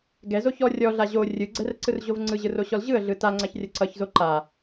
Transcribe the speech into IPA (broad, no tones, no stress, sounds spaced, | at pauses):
ɡ ɛ z o ç ɔ rʲ ɔ ɮ a ʑ o rʲ ɯ ɡ͡ǀ ɛ r ǀ ɯ r ʑ o v ŋ͡ǀ ɯ ʑ ɯ r o ɕ ɔ l ʑ ɯ ə̯ ɮ ɯ t a ŋ͡ǀ a ç rʲ ʌ ǀ ʌ ç z o ǃ a